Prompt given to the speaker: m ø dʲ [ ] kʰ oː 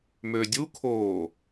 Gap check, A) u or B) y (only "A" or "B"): A